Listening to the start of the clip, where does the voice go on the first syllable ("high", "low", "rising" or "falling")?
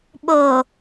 low